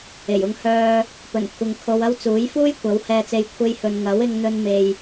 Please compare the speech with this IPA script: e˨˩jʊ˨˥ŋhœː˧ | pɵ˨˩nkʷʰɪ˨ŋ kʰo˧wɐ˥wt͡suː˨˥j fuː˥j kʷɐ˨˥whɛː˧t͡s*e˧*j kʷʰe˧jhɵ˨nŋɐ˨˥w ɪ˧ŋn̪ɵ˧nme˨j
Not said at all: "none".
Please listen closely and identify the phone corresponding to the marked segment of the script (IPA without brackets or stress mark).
e˧